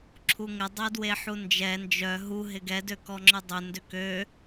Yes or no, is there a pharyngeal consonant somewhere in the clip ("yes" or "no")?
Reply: yes